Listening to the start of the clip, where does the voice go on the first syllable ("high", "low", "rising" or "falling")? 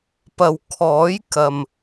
low